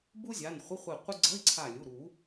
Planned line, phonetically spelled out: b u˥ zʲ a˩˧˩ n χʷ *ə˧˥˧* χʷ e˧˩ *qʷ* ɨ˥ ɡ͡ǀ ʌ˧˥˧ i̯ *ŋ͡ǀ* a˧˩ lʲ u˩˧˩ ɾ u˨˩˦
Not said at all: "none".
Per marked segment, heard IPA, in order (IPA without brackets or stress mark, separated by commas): ə˧˥˧, qʷ, ǀʰ